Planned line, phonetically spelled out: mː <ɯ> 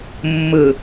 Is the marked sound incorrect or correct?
correct